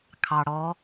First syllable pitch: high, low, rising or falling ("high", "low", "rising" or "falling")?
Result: low